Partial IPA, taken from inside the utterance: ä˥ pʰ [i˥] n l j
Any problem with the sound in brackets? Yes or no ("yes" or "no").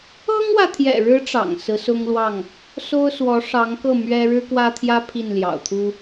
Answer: yes